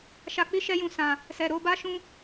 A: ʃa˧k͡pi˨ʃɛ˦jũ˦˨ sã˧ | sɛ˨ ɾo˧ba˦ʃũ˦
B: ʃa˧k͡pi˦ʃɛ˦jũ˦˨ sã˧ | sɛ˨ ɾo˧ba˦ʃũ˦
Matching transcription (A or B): B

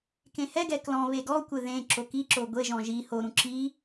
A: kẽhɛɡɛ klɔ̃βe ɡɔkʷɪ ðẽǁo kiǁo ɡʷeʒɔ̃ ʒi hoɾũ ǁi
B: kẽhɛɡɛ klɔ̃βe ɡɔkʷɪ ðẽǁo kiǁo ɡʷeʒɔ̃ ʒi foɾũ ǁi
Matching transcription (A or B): A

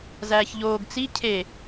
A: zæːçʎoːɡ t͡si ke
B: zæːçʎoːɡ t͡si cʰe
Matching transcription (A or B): B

